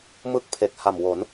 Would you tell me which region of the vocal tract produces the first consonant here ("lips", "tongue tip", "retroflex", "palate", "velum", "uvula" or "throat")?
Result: lips